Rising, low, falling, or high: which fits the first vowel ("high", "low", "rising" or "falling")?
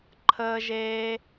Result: high